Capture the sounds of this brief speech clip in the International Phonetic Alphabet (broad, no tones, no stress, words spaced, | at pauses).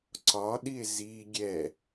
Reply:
ǀɒɗie̯ zi ɡʲɛ